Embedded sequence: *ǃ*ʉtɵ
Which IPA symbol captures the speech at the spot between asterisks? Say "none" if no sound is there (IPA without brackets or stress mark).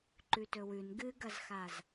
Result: ǃ